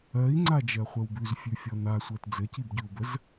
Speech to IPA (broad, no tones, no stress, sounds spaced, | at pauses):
ɜ i̯ ŋ͡ǀ a d͡ʒ ɜ χʷ ə w b ʉ z fʲ ʉ fʲ ɔ n a sʷ ɜ t d͡z ɘ c i b ɟ ʉ u̯ b ə z